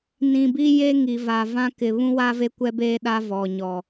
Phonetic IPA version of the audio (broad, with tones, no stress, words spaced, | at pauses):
nĩ˨bi˦ je˦ ŋi˨va˨vã˦ kɪ˨βũ˦wa˦ ve˦kʷɛ˦beː˦ɗa˦ vɔ˨ɲɔ˨